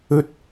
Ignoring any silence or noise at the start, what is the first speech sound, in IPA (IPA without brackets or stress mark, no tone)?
ɵ